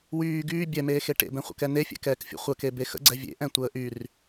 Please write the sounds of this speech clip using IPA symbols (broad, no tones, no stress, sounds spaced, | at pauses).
w yː ɡ yː bʲ ɛ m eː x e ʈ ḛ b ɛ̃ χʷ ə̰ k ɛ n e fʲ ɛ̰ k ɛː k fʲ ṵ χʷ ə k e b e x ə̰ ɡ͡ǀ ɛ vʲ ḛ ʔ ɛ̃ tʷ əː ʔ y r